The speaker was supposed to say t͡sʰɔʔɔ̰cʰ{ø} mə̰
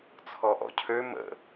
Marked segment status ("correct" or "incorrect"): correct